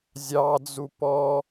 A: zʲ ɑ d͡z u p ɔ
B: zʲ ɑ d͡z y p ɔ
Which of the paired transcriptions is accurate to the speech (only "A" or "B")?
A